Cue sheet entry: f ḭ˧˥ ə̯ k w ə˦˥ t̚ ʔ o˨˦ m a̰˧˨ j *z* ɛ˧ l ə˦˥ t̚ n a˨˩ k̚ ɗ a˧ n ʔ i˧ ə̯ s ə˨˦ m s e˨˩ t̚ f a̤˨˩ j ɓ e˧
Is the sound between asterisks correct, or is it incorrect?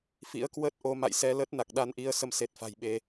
incorrect